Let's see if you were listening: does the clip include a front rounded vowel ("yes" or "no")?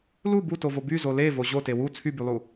yes